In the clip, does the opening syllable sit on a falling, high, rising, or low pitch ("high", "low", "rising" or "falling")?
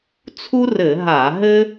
high